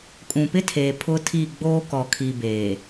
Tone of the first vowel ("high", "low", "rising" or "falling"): low